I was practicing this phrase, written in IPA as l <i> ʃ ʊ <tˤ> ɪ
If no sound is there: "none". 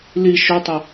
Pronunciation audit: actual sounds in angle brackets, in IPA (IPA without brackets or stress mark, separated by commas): i, tˤ